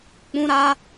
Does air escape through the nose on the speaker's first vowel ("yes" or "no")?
yes